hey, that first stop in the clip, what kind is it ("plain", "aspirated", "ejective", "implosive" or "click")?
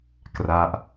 plain